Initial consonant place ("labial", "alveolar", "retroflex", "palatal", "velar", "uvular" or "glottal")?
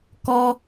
velar